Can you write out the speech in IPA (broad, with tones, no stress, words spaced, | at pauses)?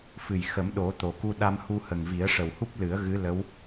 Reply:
fɨ˨˩jxə˨˩˦m ɗo˨˩˦t̪o˨˩˨ ku˧ɗa˧mhu˧hə˨˩ŋ vi˨˩˦ə̯ʂə˨˩whu˦˥p̚lɨ˨˩˦ə̯ ɣɨ˧˥ lə˧˥w